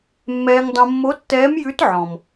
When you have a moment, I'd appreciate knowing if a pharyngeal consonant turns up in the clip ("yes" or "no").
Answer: yes